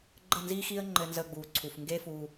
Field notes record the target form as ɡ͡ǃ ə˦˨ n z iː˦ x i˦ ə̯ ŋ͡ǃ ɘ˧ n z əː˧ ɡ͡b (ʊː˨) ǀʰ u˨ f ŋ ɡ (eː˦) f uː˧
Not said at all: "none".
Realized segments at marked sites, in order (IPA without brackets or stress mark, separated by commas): uː˨, eː˦